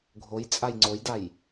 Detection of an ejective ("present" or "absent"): present